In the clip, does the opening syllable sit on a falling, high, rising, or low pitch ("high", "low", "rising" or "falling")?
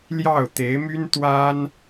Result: falling